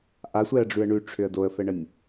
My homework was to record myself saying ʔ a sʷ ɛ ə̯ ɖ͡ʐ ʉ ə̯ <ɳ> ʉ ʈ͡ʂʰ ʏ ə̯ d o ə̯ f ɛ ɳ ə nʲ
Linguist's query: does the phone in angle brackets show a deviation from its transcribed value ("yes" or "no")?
no